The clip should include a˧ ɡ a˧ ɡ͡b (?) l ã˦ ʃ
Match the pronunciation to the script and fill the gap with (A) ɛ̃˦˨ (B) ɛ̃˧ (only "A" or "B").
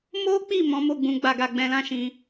B